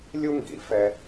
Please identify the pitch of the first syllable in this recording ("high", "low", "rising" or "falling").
high